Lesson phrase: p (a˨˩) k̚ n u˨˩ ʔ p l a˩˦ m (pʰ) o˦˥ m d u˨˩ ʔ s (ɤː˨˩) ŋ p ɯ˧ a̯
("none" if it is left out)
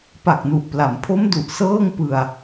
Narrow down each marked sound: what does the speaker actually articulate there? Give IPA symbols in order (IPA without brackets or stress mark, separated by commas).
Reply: a˨˩, pʰ, ɤː˥˩